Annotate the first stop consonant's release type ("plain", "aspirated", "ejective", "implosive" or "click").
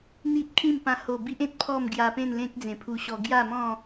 plain